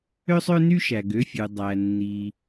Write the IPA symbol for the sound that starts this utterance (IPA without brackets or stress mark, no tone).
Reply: ø